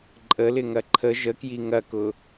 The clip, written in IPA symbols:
ǃʼ ə l ɪ ŋ ɐ ǃʰ ə ʒ ə k j i ŋ ɐ k ʊ

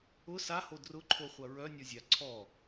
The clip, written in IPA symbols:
ʊ s a h o d r ʊ ǃʰ o χʷ ɐ ɹ œ nʲ ɔ zʲ a ǀʰ ɔ

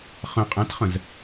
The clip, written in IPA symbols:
χ ə̃ qʼ æ̃ t χ ə̃ z

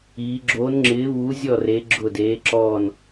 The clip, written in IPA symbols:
iː˧˥ ɡ͡ǁ oː˧˥ n ŋ͡ǁ ɪː˧˥ β uː˧˥ zʲ ɔ˥˨ r e˧˥ ɡ͡ǁ ʊ˥˨ d eː˧˥ ǁ ɔː˥˨ n

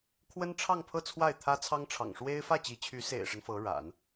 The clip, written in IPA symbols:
kʰ w ə˥ n ʈ͡ʂʰ ɑ˥˧ ŋ pʰ ɤ˥˧ t͡sʰ w a˥˩ ɪ̯ t̪ʰ ä˥ t͡sʰ ɑ˥ ŋ ʈ͡ʂʰ ɑ̰˨˩ ŋ ʂ w e˥ ɪ̯ f ä˥˩ t͡ɕ i˧˥ t͡ɕʰ y˧˥ s ḛ˨˩ ɪ̯ ʂ ə˦ n f ɤ˧˥ ɻ a̰˨˩˦ n

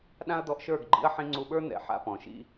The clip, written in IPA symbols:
ɗ ã˦ ɐ̯ d̪ ɔ˧ ʔ ʃ ə˞˦˨ ɡ ɡ͡ǃ ḭ˧ ɐ̯ ħ ĩ˧ ŋ͡ǀ u˧ ɓ ə˞˦ n̪ ɛ̰˨ ħ a̰˦ p ɔ̃˨ ʃ ḭ˦

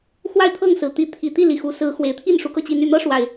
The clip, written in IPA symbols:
x w a˥˨ ɪ̯ t̪ʰ ɤ˥˨ ŋ s ɹ̩˨˩ t̪ i˨˦ t̪ʰ i˨˩ t̪ i˥˨ l i˨˩ x u˨˦ s ɹ̩˨˦ x w e˨˩ ɪ̯ t̪ʰ i˥˨ n ʂ u˨˦ k ɤ˧ t͡ɕ i˨˦ n y˨˩ n̪ ɤ˦ ʂ w a˨˩ ɪ̯

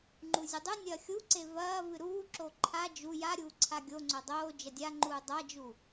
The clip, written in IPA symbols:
ŋ͡ǃ u zʲ ɨ dˤ ʉ nʲ ɐː xʲ u ǀ e v ɐː v ɨ ɾ uː ǁ o ǃʰ a d͡ʒ u j a ɾʲ uː ǀʰ a ɡʲ o ŋ͡ǀ o dˤ oː d͡ʒ ɐ dʲ a ŋ͡ǃ uː dˤ a d͡ʒ u

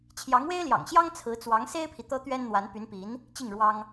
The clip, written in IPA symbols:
t͡ɕʰ j ɑ˧˥ ŋ w e˥ ɪ̯ l j ɑ̰˨˩ ŋ ɕ j ɑ˥ ŋ t͡sʰ ɹ̩˧˥ t͡s w ɑ˧˥ ŋ s e˥ ɪ̯ pʰ i˨ t̪ ɤ˥ t̪ ɥ ɛ˥ n n̪ w a˧˥ n p y˧˥ n p i˧˥ n | t͡ɕ i˥˩ ŋ ɻ w ɑ˥ ŋ

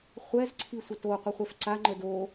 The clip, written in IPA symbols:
χʷ ɛ z ǀʰ i sʷ ə t o qʷ ɛ χʷ ɛ f ǀ a ŋ͡ǃ ə d o

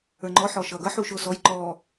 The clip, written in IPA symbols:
ə˞ ŋ͡ǃ ɔ ħ ɔː ʃ ʌː ɡ ʌ ħ uː ʃ ʊː s ɔ j ǃ ɔː

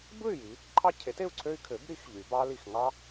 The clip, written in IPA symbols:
b ɯ˥˨ y̯ j i˩˧ | ǃʰ ɑ˦ cʰ e˩˥ t e˥˨ u̯ ǀʰ ø˦ y̯ kʰ ø˩˥ b ɾ i˩˥ x ʎ y˩˧ b ɑ˦ l i˧˩ x ŋ ɑ˦

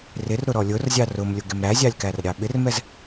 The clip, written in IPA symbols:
r ɪ r ɾ ʊ ɾ ɔ lʲ ʊ r zʲ ɑ r ʊ m lʲ ʊ ɡ ɪ m ɾ æ zʲ ɑ lʲ k æ r ɾʲ ɑ ɓ ɪ r m ɛ z

